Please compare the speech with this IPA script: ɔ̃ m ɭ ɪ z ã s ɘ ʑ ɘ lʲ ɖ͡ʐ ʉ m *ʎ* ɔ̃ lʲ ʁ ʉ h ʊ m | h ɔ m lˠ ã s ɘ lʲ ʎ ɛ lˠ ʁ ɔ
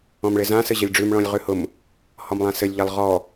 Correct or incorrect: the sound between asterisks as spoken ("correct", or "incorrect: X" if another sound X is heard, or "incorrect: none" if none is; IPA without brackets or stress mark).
incorrect: ɭ